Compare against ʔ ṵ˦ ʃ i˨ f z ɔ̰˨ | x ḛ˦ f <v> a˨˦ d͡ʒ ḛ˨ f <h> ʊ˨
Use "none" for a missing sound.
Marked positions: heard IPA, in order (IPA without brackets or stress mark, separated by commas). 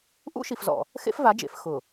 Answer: v, x